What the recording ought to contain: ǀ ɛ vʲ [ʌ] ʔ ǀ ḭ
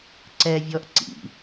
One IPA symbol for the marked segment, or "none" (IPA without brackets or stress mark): ɔ